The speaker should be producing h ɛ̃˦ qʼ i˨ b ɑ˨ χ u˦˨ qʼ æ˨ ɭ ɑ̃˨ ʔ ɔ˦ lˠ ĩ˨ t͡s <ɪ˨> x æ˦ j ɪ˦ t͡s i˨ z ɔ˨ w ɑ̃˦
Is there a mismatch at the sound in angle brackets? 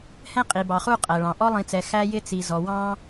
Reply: yes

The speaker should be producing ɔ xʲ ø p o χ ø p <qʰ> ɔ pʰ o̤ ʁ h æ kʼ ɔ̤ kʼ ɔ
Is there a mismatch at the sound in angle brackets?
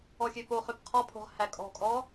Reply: no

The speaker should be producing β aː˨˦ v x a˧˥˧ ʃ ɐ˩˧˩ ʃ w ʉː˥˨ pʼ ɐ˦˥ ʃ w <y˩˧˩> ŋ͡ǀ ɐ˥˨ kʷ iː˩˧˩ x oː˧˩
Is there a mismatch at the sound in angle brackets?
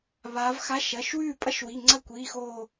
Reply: yes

